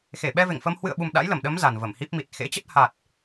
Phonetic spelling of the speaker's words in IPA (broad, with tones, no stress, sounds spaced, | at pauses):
x e˧˩ ɓ ɛ˧ v ḛ˧˨ ŋ f ə˧ m h w ɨ̰˧˨ ə̯ ɓ u˨˩ m ɗ a̰˧˥ j l ə˧˩ m ɗ ə˨˦ m z a˨˩ n v ə˧˩ m h i˦˥ p̚ m i˨˩ t̚ x ḛ˧˥ t͡ɕ ə˦˥ t̚ h a˨˩ t̚